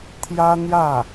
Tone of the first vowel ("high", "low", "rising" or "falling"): high